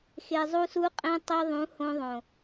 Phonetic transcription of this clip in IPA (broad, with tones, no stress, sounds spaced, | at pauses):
x e˨ zˤ u˧ s u˧ qʼ ẽ˧ tˤ i˧ ðˤ ũ˨˦ h õ˧ ðˤ õ˨